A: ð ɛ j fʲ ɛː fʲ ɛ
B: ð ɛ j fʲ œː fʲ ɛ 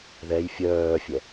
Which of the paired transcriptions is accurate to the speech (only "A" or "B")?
B